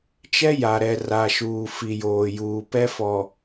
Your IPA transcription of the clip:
t͡ʃ ɛ˦ j a˨ ɾ ɛ˨ r a˨ ʃ uː˨ f i˨ j oː˨ j uː˨ p ɛ˦ f ɔ˨

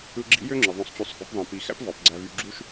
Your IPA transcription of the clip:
ɯ˧ ɡ͡ǁ ḭ˧˥ j ø˥ ŋ͡ǁ ɯ˩ ðˤ õ˧ sˤ t͡ɕ y˧ sˤ x ṵ˩˧ p ðˤ ĩ˩ p i˩˧ x æ̰˥ p v ɑ˩˧ p ɡ͡ǀ æ˧ v y˧ ɡ͡ǁ u˥ ʃ

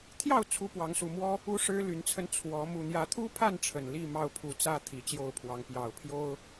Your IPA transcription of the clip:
t̪ʰ j ɑ˥˨ ʊ̯ t͡sʰ u˦ p w ɑ˨˦ ŋ s u˨˩ m w ɔ˦ | u˦ ʂ ɻ̩˦ l y˨˦ n t͡sʰ ə˧ n t͡sʰ w ɔ˨˦ m u˨˩ n̪ j ä˨˦ t̪ʰ u˦ pʰ a˥˨ n ʈ͡ʂʰ ə˨˩ n l i˥˨ m ɑ˥˨ ʊ̯ pʰ u˨˦ t͡s ä˦ t̪ʰ i˨˩ t͡ɕ j o˥˨ ʊ̯ pʰ w ɑ˨˦ ŋ p j ɑ˨˩ ʊ̯ pʰ j o˦ ʊ̯

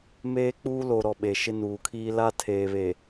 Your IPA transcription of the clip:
m eː˦ k͡p uː˦ l o˨ ɾ ɔ˨ ɓ e˨ ʃ ɪ˦ n uː˨ kʰ iː˦ l a˦ tʰ eː˨ β e˨

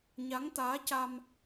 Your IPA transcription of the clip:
ɲ a˧˥ ŋ t̪ aː˧˥ c a˧ m

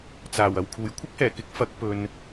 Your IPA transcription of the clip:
t͡s aː˨˩ w ɐ˨˩ w kʰ uː˨˩ j kʷʰ ɪ˥ k̚ h ɛː˨˩ k ɪ˨˥ k̚ f ɐ˨˥ k̚ p ɵ˨ n

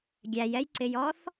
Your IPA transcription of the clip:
ɡʲ æ j ɛ j ǀ ɪ j ɔ θ

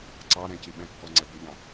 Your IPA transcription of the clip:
ǀ ɑ ɾ ɛ̃ c i ɓ ɛ̃ kː ɔ ŋ͡ǀ ɛ b ʉ ʎ ɑ̃

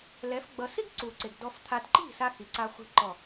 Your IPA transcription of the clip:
l ɛ˨˦ f ɡ͡b ʌ˧ s i˦ ɡ ǀ u˨ ǀ e˨ ɡ d ɔ˧ f t̪ʰ a˧ d ǃ i̤˦˨ s a˧ x i˨ ǀ a˧ χʷ i̤˧ ǃ ɔ˨

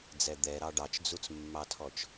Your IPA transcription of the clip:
d͡z ɛ d̪ ɛ ɾ ɑ ɖ ɑ t͡ʃ d͡z u t͡s mː ɑ tʰ ɔ t͡ʃ

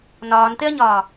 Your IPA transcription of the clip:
n ɒː n t̪ e ɐ̯ ɲ ɒː

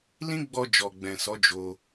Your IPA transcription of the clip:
l ĩ˦ ɡ͡b ɔ˧ d͡ʒ ɔ˨ ɡ͡b ɛ̃˨ s ɔ˨˦ d͡ʒ o˧

